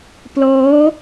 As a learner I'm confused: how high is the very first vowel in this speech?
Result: mid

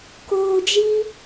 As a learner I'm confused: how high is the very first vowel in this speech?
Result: mid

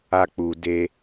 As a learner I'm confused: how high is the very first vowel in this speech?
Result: low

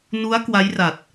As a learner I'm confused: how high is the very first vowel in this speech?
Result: high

